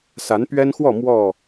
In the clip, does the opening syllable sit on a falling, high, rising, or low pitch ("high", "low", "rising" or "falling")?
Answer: rising